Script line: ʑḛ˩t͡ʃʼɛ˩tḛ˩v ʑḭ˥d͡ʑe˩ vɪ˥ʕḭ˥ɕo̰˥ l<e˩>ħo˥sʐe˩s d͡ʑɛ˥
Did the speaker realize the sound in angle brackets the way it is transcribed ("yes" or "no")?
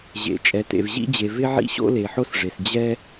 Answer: yes